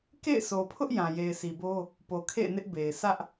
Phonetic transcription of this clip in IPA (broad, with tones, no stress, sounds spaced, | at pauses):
k ḛ˦˨ ɪ̯ s o˨ pʰ ʊ˦ ʔ j ã˨ j e˨ ɪ̯ s i˨ b o˦ | p o˨ kʰ ḛ˦˨ ɪ̯ n ɪ˦ ʔ b e˨ ɪ̯ s ä˦ ʔ